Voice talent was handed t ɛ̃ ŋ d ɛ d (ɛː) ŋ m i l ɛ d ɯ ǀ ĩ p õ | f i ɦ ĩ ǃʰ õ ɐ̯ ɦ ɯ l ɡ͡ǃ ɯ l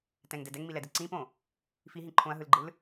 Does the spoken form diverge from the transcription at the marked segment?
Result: yes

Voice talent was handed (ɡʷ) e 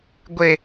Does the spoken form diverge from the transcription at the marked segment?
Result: no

